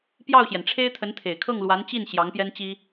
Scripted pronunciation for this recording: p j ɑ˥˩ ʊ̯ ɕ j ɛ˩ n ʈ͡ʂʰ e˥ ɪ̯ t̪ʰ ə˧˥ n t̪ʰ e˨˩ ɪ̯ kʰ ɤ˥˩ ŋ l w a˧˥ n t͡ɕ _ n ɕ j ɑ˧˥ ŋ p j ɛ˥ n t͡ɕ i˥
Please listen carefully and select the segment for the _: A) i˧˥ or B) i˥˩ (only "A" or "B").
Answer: B